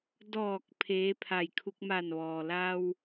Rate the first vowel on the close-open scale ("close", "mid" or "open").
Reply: mid